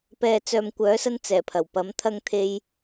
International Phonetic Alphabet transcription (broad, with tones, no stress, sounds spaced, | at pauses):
p ɛː˨ t͡s œː˨ m kʷ œː˨˥ s ɐ˧ n t͡s ɛː˨˩ pʰ ɐ˨˩ w p ɐ˨˥ m t̪ʰ ɐ˧ ŋ t̪ʰ e˧ j